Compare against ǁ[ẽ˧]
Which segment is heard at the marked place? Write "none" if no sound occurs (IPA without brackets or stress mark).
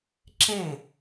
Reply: ẽ˥˩